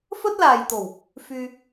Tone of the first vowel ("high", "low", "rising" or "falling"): high